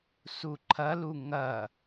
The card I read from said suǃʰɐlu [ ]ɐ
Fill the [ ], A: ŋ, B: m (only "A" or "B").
A